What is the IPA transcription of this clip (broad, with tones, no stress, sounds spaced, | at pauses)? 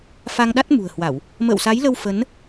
f a˧ ŋ ɗ a˦˥ t̚ m ṳ˨˩ ə̯ h w a˧˩˨ w | m ə̰ː˧˨ w s a˨˦ j l ə˧ w f ə˨˦ n